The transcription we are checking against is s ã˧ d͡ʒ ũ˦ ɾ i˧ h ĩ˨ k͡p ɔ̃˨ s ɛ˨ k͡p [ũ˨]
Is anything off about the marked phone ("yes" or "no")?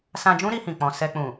no